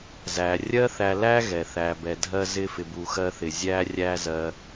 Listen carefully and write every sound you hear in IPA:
z æ˩ rʲ ɜ˥ θ æ˧ l æ˥ ɣ ɛ˩ θ æ˩ b ɛ˩ dʱ ɜ˧ z ɪ˧ f ɪ˩ b u˩ x ɜ˧ θ ɪ˩ zʲ æ˧ rʲ æ˧ z ɜ˩

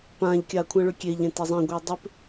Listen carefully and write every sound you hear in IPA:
p ã ʎ kʲ a kʷʰ ã ɭ ʏ kʲ e ʎ ẽ t e zˤ ẽ ɡʷ e u̯ dˤ ʏ p

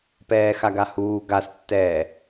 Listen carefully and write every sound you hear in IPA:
p ɛː x a ɡ a h uː ɡ a s tː ɛː

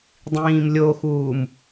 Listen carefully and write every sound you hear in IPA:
dˤ ĩː m lʲ o x uː m

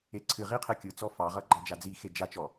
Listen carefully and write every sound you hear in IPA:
e ǀʰ ɨ ʁ i qʰ e kʲ ɯ t͡s ɔ f ɑ ʁ ʌ ɡ͡ǃ ɑ d͡ʒ a d͡z i x e d͡ʒ a t͡ʃ ɔ

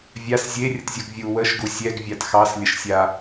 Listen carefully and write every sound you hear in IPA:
vʲ a s zʲ e rʲ ə t zʲ u ɡ vʲ u w ə ʃ ɡ u sʲ ɛ ɡ vʲ a t x ɑ s lʲ ə ʃ sʲ a

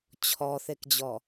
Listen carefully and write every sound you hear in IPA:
t͡ɕʰ ɔ θ e k d͡ʑ ɔ

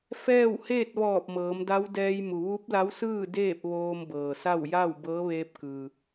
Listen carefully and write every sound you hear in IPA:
f ɛː˥˨ w h eː˥˨ t̚ ʋ ɔː˧˩ p̚ m ɤː˩˧ m d a˧˥ w d ɛː˧ j m u˩ ʋ u˧˥ p̚ l a˧˥ w s ɯː˥˨ d eː˥˨ p̚ ʋ oː˧ m b ɤː˩ s a˥˨ w j a˥˨ w b ɤː˧˥ ʋ eː˧ p̚ k ɯː˩

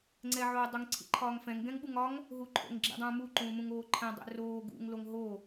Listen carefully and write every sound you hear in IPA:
ŋ͡ǀ ɛ ʕ o dˤ u ŋ ǀʰ ḭ ǃʰ ɒː ŋ f ɛ̃ ŋ ɡ ɛ̃ ŋ ɓ u ŋ ɒ ŋ | ɦ u ǃʰ o̰ ŋ ɡ͡ǁ ḭ dˤ ũː m u ǃ ũː m ũ ŋ oː ǃʰ ɛ̃ dˤ ɛ̰ r oː ɡ ṵ ŋ l o ŋ ɦ o

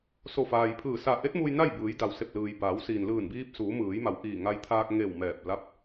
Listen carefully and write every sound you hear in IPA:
s o˧˩ f aː˩ j pʰ ɯː˧˩ s a˧˩ ʔ e˧˥ t̚ m uː˧ j n a˥˨ j b ɯː˩˧ j d a˩ w s e˧˩ p̚ l ɯː˩ j b aː˩˧ w s iː˩ n l ɯː˧˩ n b iː˧ p̚ s uː˩˧ m ɯː˩˧ j m a˩ w ʔ iː˧˩ ŋ a˧ j t̪ʰ aː˧ k̚ ŋ e˧˩ w m ɛː˧˩ p̚ l a˧˥ p̚

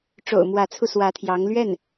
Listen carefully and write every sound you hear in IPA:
ʈ͡ʂ o̰˨˩ ʊ̯ m w ä˧˥ t͡sʰ u˧ s w ä˧˥ t̪ʰ j ɑ˧˥ ŋ l ɥ ɛ˥˩ n

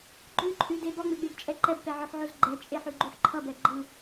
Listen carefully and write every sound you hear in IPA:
ɡ͡ǃ ʉ ǃʼ ʉ d e b ɔ ŋ͡m e ɡ͡b e ɡ t͡ʃʼ ɛ ǃ ɛ b p ɛ ʕ ə˞ ħ ʕ o z ɡ͡ǃ ɛ t͡ʃʼ e ħ ʉ ɡ͡ǃ ʉ ħ ǃʰ ʌ b ɛ ɡ͡ǃ ɯ

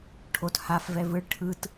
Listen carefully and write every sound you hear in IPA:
ʈʰ o t h a f v ɛ v ɯ ɭ ʈʰ ɯ t

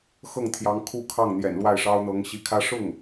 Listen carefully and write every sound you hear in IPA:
x ɤ˥˩ ŋ t̪ʰ j ɑ˧˥ ŋ kʰ u˥˧ kʰ ɑ˥˩ ŋ n̪ j ɛ̰˨˩ n l w a˥˩ ɪ̯ ʂ ɑ˥ ʊ̯ n̪ ɤ˧˥ ŋ ɕ i˧˥ kʰ ä˥ ʂ ʊ˥˩ ŋ

